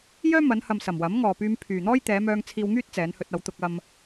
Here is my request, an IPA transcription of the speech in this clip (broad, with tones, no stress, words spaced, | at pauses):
jœː˥mɐ˨˧nhɐ˨msɐ˨˩m wɐ˨˥mŋɔː˨ pyː˧mpʰyː˨n̪ɔː˥j t̪ɛː˨˧mœː˧ŋ t͡sʰiː˧wŋyː˥t̚ t͡sɛː˨˧nhɵ˧t̚ɐ˨˧w t̪ʊ˧k̚ɐ˧m